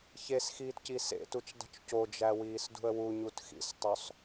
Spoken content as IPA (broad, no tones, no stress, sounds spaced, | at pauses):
ç e s x iː t c i s ḛ t u t͡ʃ dˤ ṳ t͡ʃ c o d͡ʒ æ w iː s d ṳ ə̯ w u ɲ u t x ḭ s tˤ o sˤ